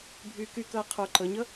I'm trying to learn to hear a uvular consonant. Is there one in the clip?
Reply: yes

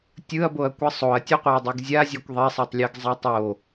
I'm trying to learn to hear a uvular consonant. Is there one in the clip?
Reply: yes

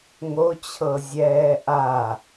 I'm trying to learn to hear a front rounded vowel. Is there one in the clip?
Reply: no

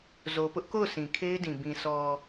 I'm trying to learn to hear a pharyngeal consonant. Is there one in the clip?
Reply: no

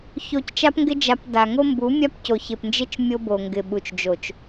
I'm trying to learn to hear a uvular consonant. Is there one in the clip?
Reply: no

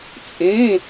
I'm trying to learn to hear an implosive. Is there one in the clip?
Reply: no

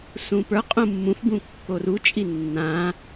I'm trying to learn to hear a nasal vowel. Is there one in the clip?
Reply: yes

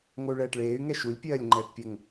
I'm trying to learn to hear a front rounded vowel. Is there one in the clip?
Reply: yes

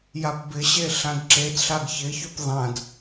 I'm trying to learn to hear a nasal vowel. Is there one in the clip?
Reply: yes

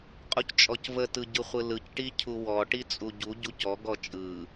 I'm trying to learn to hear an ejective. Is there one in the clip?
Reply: yes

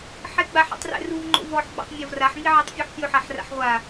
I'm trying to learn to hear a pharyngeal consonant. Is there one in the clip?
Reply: yes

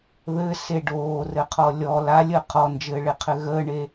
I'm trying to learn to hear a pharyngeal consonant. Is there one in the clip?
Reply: no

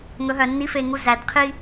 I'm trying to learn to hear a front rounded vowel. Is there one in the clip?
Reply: yes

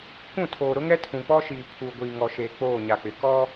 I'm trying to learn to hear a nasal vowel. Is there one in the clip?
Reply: yes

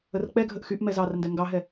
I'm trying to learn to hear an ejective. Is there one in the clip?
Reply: no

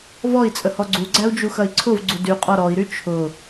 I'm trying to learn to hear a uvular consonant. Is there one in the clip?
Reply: yes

